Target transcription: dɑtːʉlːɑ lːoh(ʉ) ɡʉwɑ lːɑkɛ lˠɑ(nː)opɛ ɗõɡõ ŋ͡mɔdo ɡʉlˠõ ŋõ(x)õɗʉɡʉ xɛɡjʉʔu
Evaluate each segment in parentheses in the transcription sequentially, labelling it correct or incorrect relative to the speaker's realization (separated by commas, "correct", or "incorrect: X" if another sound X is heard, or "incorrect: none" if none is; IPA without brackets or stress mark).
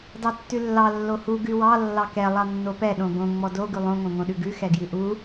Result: incorrect: u, correct, incorrect: ŋ